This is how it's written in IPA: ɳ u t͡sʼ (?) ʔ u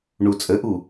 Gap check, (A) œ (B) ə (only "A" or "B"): B